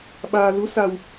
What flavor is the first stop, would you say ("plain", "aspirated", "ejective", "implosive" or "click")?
implosive